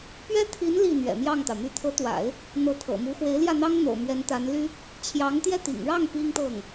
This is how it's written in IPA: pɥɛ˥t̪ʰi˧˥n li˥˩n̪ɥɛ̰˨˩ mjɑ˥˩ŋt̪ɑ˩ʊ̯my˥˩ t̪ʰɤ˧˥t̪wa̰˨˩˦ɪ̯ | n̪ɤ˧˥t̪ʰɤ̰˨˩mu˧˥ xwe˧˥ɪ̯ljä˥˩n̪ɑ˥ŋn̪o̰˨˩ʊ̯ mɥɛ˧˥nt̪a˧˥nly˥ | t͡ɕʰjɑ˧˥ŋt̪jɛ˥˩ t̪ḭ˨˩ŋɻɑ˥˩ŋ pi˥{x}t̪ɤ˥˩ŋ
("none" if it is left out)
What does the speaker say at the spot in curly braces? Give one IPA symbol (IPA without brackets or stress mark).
ŋ